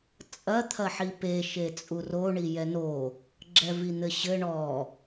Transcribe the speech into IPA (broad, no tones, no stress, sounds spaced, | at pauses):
t͡sʼ ɐ t̪ʰ ɐ ħ i p e ʃ e t͡sʼ u r o ɳ i j ɛ n o | ɡ͡ǁ ɛ v i n̪ ɘ ɕ ɘ ɳ ɔ